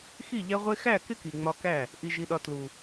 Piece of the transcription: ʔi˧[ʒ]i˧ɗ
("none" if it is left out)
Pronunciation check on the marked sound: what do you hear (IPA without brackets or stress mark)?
ʒ